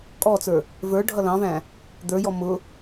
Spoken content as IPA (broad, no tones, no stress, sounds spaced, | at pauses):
kʼ ɔ t͡s ə˞ | v ə˞ ɖʱ ʌ l ɑ̃ v æ̃ | d̪ ə˞ j ɔ m ʊ